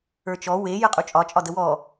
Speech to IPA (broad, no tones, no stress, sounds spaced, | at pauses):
ə˞ t͡ʃ ɔ w e j ə qʼ u t͡ʃʼ ɒ t͡ʃʼ ɒ d ə w ɔ